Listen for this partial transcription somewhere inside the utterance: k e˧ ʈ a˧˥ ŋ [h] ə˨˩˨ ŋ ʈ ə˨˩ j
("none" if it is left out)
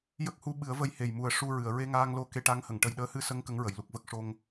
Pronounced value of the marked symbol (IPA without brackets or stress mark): h